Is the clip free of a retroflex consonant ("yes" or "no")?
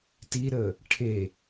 no